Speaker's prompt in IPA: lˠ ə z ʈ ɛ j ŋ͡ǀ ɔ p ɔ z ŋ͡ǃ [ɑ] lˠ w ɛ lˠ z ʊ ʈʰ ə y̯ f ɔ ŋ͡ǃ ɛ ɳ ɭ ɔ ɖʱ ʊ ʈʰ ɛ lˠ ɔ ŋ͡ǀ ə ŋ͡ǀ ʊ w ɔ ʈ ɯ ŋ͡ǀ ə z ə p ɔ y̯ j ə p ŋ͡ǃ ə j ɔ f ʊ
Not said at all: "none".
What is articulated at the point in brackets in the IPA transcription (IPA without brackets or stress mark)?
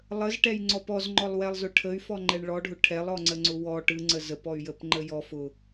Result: ɔ